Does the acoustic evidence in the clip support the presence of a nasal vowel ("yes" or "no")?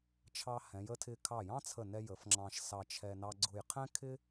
yes